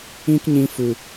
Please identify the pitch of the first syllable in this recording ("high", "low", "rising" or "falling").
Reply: high